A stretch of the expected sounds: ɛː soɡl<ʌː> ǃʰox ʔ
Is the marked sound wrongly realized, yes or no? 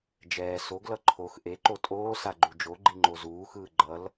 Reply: yes